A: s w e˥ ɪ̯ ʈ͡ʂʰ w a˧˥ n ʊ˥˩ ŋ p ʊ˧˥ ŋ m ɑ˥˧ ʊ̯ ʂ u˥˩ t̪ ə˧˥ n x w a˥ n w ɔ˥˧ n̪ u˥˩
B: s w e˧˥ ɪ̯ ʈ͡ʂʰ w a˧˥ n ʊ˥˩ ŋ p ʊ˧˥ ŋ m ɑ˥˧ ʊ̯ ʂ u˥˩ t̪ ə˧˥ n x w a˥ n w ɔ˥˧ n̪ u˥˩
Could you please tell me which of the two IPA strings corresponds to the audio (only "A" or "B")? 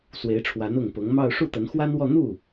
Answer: B